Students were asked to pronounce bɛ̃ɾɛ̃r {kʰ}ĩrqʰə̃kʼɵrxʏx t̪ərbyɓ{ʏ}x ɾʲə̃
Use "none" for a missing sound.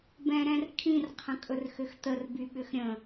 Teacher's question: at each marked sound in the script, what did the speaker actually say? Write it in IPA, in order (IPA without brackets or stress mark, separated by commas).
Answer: kʰ, ʏ